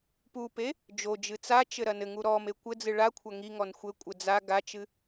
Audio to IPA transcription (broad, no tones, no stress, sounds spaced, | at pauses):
p u p e | d͡ʒ o d͡ʒ ɨ t͡s a t͡ʃ ɘ ɾ ɐ n ɘ ŋ u ɾ ɔ m e kʷ ɘ d͡z ɨ ɭ a kʷʰ ɐ ŋ i ŋ ɔ n xʷ ɘ kʷʼ ɘ d͡z a ɡ a t͡ʃ ɨ